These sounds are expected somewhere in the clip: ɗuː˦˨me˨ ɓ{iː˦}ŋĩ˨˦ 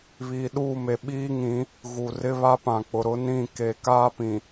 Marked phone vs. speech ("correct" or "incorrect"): correct